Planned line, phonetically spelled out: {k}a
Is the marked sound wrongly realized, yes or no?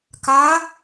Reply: no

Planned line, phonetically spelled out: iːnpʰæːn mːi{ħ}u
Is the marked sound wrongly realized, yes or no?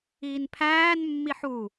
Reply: no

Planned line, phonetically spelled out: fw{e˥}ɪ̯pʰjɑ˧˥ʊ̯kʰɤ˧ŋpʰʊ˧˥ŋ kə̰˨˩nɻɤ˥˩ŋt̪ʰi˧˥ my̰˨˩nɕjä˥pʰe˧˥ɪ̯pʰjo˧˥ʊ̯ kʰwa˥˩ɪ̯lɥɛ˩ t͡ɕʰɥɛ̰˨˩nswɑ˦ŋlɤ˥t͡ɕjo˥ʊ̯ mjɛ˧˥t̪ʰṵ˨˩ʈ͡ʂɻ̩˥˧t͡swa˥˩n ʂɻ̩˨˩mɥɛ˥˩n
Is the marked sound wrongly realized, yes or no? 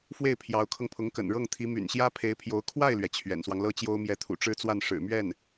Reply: yes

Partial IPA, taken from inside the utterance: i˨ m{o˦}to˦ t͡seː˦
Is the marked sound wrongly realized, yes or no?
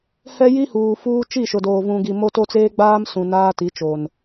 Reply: no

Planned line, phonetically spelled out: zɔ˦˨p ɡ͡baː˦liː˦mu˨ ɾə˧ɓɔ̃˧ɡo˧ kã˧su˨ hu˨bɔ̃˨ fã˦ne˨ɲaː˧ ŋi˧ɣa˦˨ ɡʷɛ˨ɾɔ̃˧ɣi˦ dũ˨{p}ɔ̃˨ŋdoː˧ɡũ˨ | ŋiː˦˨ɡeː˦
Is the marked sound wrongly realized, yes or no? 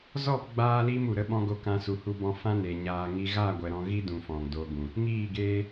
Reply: yes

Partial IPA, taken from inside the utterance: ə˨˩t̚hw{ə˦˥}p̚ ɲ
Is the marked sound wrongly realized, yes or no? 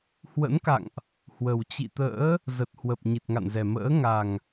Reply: yes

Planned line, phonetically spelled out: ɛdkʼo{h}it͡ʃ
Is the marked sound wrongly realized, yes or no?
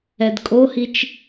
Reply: no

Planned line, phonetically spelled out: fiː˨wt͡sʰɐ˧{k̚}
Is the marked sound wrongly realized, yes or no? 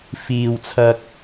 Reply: no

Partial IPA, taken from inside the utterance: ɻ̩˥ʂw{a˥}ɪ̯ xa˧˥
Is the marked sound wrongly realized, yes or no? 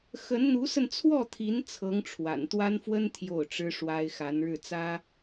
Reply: no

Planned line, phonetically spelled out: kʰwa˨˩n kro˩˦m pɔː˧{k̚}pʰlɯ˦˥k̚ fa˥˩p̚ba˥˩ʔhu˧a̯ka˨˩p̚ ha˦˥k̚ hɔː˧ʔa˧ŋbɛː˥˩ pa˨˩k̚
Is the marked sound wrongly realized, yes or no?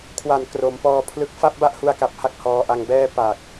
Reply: yes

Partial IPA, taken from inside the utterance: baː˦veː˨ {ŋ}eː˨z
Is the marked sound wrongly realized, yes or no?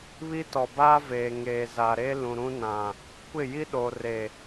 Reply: no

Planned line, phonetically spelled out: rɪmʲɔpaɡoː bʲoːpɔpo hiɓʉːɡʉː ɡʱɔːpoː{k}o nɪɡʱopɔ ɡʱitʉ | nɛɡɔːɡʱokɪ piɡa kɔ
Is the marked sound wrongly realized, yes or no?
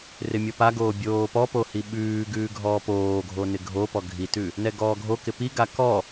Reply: yes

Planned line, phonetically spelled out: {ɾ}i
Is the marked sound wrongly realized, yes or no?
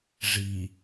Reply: yes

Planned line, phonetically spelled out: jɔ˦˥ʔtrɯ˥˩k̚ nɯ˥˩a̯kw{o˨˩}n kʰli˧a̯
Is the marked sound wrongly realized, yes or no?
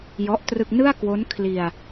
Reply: yes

